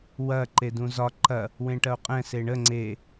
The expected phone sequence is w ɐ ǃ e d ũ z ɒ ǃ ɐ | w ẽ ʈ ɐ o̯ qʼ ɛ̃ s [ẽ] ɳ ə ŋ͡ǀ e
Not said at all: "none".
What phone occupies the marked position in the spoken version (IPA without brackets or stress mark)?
e